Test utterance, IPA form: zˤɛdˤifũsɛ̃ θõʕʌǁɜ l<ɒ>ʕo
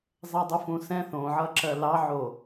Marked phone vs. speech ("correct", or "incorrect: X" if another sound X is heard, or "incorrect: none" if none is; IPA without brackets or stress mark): incorrect: ɑ